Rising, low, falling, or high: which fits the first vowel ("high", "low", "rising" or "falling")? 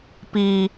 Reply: low